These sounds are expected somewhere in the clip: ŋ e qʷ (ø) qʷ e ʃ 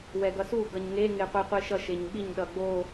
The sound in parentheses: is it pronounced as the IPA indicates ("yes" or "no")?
no